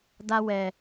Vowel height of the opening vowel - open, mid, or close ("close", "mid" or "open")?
open